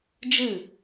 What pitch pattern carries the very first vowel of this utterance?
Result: falling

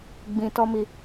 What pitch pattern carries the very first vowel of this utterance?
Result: low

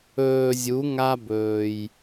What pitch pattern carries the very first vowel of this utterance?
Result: low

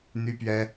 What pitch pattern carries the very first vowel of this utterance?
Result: high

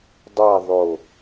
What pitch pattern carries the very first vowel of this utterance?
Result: falling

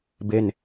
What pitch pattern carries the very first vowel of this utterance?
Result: falling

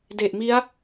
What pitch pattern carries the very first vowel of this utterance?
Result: low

